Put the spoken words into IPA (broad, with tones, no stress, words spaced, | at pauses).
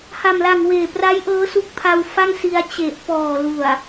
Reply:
ha˨˩mla˨˩ŋ weː˨˩pra˦˥j ʔɤː˦˥su˦˥k̚pʰa˧wfa˥˩ŋ si˧a̯ t͡ɕe˨˩ʔ pɔː˨˩lu˨˩a̯